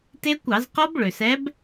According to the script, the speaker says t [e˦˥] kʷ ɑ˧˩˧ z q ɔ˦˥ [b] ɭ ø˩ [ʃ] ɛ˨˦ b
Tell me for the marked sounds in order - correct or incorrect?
correct, correct, incorrect: s

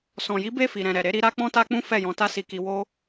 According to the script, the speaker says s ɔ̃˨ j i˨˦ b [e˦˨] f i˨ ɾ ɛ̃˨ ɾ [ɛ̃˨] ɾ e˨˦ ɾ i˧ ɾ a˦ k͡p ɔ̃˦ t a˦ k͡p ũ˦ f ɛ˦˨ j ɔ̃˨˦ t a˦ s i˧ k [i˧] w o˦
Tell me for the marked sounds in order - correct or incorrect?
correct, incorrect: ɛ˨, correct

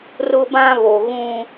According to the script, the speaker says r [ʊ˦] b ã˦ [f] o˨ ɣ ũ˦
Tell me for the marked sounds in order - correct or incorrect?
correct, incorrect: β

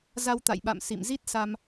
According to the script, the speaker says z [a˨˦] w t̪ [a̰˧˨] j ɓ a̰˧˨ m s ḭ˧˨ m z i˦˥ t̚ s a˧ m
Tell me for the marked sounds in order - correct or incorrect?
incorrect: a˧, correct

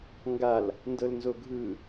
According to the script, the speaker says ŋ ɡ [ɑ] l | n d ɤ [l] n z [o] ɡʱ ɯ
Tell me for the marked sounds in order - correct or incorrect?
incorrect: a, correct, correct

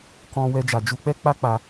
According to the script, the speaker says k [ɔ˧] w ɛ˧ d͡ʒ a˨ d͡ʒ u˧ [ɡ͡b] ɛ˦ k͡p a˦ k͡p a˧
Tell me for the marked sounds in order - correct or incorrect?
incorrect: ɔ̃˧, incorrect: k͡p

